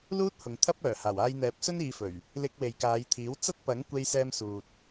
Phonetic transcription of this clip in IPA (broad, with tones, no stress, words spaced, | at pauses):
luː˥t̚hʊ˨ŋt̪ʰɐ˥p̚œː˨˩ haː˨˩waː˧jn̪ɛː˨˥p̚ sɵ˥niː˨˧fɵ˨˩ɥ | lɪ˧k̚ we˨jkaː˨˧jt̪ʰiː˨˥w t͡sɐ˥t̚pɐ˨˥ŋ kʷe˧jsɛː˧m suː˨t̚